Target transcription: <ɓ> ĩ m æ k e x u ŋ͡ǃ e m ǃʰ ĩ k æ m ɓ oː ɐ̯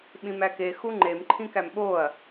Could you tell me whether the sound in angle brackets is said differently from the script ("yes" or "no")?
no